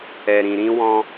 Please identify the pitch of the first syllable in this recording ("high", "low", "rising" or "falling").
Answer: low